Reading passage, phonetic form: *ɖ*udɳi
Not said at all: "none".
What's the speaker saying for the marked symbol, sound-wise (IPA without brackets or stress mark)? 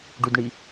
ɖ